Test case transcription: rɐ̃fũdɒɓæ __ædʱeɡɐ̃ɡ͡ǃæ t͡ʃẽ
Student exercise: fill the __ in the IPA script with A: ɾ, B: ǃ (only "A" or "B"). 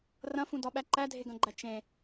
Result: B